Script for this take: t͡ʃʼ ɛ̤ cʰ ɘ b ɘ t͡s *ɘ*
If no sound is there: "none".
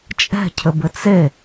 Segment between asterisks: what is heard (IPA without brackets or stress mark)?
e